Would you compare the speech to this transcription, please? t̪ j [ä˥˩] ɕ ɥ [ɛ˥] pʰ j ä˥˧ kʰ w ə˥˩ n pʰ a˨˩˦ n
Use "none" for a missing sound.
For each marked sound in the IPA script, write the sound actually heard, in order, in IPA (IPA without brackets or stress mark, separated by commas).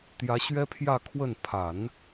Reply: ä˧˥, ɛ˥